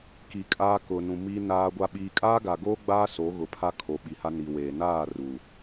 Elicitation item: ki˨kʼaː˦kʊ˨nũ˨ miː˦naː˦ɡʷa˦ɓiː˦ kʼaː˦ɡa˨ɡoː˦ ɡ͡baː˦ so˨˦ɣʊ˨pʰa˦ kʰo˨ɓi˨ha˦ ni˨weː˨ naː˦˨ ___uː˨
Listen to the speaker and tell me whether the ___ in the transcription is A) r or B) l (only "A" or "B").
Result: A